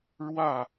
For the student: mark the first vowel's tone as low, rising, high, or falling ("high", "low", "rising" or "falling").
falling